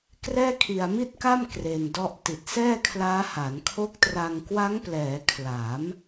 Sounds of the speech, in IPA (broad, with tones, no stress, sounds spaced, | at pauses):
k r ɛː˥˩ kʰ i˧ a̯ m i˥˩ t̚ k a˥˩ m k r e˧ n d ɔ˦˥ ʔ t i˨˩ t̚ s ɛː˥˩ kʰ l aː˦˥ h a˩˦ n kʰ o˦˥ k̚ t r a˧ ŋ k w a˦˥ ŋ p l ɛː˩˦ kʰ l a˩˦ m